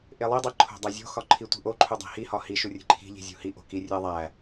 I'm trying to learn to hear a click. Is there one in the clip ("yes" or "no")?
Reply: yes